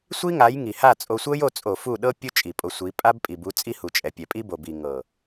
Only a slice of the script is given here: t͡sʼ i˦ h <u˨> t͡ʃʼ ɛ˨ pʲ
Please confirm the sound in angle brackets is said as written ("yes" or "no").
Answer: yes